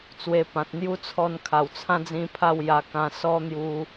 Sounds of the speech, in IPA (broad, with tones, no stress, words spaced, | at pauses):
t͡swe˧pã˨t̚ n̪ju˦t͡sʰɔ˧n kʰa˨˩wt͡sʰã˦d͡zĩ˧pʰa˥˧w ja˧kã˧ sɔ˦n̪ju˧